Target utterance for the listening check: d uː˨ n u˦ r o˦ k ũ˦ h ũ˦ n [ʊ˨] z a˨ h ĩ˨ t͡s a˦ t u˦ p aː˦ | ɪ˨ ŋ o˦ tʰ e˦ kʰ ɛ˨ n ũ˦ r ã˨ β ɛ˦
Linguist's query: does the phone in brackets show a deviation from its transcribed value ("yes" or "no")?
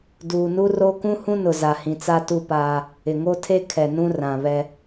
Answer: no